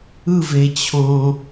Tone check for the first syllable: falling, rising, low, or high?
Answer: falling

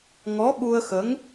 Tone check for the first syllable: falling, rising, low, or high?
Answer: rising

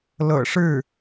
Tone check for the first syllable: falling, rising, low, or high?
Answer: low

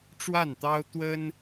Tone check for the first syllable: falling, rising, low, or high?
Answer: falling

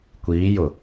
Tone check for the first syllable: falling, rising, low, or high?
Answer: rising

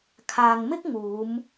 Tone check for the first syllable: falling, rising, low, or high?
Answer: low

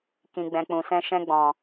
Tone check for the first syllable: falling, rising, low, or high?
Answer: high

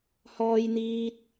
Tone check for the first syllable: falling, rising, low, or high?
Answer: high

